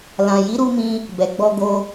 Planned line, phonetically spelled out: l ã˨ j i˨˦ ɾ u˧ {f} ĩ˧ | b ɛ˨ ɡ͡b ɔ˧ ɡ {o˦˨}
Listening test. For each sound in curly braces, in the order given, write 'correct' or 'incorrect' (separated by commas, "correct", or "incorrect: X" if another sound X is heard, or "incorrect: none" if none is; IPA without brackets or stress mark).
incorrect: m, incorrect: o˧